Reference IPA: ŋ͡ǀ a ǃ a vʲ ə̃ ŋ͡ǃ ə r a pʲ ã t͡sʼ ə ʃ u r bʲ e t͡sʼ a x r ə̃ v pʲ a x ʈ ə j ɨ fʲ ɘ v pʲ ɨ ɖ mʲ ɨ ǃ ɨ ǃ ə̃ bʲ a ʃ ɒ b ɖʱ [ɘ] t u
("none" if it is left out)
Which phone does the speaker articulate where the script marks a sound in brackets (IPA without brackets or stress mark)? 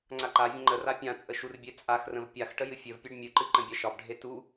e